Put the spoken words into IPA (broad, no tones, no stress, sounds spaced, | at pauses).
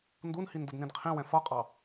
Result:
n d u n h i n d ʊ d n ĩ d qʰ ĩ w ɛ̃ f ʌ qʼ ɑ